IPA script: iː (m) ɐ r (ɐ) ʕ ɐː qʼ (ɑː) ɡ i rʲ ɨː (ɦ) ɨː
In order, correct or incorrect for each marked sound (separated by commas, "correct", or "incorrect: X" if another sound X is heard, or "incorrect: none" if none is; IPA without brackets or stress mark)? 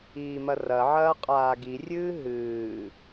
correct, correct, incorrect: aː, correct